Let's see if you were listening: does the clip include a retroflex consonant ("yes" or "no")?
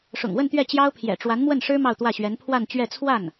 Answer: yes